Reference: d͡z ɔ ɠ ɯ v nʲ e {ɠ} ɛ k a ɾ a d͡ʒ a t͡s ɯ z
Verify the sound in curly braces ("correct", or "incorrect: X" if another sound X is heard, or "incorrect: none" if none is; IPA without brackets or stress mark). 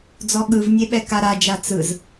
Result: incorrect: ɓ